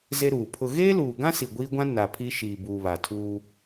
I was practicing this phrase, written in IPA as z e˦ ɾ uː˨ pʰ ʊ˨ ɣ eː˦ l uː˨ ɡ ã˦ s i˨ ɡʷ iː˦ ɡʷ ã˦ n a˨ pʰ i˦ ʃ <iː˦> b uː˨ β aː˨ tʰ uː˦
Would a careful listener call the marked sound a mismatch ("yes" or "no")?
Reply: yes